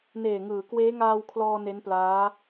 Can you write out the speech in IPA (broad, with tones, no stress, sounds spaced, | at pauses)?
n eː˨˩ ŋ ɯː˩˦ k w eː˦˥ ŋ aː˧ w kʰ l ɔː˧ n e˦˥ n p l aː˦˥